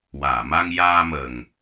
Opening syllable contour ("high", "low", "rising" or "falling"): low